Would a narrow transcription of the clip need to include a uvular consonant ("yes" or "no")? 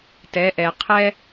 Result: yes